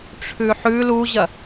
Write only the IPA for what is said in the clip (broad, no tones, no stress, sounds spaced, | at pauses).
ʈ͡ʂʰ ʉ ħ ʉ l u ʑ ɐ